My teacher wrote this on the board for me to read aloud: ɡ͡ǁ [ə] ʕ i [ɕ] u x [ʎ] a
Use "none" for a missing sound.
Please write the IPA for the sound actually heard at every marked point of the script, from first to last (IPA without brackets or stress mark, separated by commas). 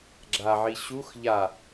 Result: a, ɕ, ʎ